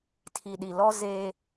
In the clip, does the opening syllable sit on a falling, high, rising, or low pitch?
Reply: low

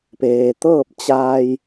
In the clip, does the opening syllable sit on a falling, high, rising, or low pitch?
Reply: low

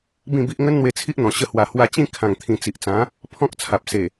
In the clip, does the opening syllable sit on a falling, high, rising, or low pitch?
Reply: falling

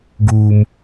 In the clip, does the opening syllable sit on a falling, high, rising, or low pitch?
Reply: high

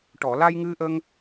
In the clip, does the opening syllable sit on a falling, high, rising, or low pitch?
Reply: low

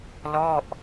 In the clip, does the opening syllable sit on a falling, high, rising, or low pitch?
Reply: falling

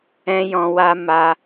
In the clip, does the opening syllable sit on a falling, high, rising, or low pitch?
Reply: high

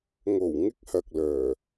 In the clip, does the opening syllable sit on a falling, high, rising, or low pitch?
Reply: low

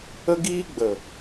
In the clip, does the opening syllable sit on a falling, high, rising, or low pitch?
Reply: high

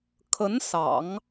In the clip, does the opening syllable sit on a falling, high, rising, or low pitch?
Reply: rising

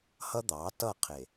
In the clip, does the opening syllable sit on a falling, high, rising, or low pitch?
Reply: high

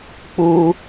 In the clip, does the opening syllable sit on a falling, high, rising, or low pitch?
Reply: high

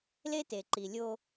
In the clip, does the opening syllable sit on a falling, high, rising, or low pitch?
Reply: high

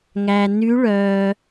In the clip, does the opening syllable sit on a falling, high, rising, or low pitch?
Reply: low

